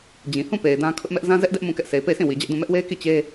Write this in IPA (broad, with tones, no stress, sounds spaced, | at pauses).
d͡ʑ ĩ˨ h ũ˦˨ p e˨ ɪ̯ d ã˦ kʰ ʊ˦ ʔ m ɛ˦ ʔ z ã˦ z ɛ˦ ʔ d ɛ˦ ʔ m ũ˦˨ k ɛ˦ ʔ s e˨ ɪ̯ p e˦˨ ɪ̯ s ĩ˦˨ w i˨ d͡ʑ ɛ˦ ʔ d ũ˦˨ m ɛ˦ ʔ w e˦ ɪ̯ k i˦˨ t͡ɕ e˦